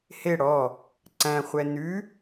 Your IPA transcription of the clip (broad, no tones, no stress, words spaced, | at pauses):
he ɽɔ | ǀæ̃ χʷɛnʉ